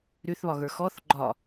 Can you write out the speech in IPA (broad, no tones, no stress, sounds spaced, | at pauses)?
ɾ y θ β ɒ ɣ ə˞ x ɔ θ ɡ͡ǃ ɒ